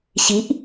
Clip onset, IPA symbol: ɕ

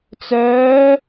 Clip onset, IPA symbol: t͡s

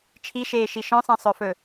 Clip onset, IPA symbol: t͡ʃʰ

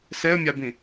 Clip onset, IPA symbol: s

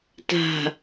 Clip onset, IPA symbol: t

